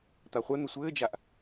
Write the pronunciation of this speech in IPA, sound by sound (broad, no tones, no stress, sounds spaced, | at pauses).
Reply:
t̪ a χʷ ɛ n̪ ɘ sʷ ɘː d͡ʒ a ʔ